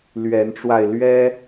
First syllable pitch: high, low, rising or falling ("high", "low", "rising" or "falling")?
rising